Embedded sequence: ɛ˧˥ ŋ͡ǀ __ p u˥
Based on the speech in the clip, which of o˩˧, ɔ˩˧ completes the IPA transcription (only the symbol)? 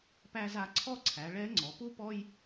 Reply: ɔ˩˧